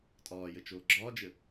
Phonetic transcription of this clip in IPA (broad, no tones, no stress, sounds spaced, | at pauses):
tʼ ɒː j ɘ t͡ʃ oː ɡ͡ǁ ɒː d͡ʒ ɘ